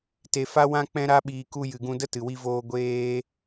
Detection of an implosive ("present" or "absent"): present